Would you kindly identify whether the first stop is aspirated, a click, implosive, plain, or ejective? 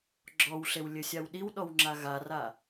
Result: click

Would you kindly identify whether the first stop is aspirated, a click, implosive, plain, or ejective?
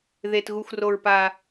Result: plain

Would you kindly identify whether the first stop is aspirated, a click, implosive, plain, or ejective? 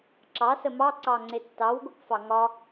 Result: click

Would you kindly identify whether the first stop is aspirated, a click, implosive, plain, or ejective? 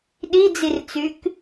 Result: implosive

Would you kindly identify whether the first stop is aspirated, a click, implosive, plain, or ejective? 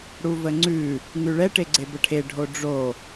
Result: click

